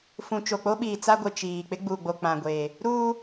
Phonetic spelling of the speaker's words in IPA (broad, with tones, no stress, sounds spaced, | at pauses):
f ũ˨ t͡ʃ o˨ k͡p o˦ ɓ iː˨ t͡s a˦ ɡʷ ɪ˨ t͡ʃ iː˨ k͡p ɪ˦ ɡ͡b uː˨ ɡ͡b o˨ k͡p ã˨ ɡʷ eː˨ | ɾ uː˦